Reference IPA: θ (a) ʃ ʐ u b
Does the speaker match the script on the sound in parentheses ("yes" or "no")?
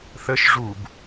no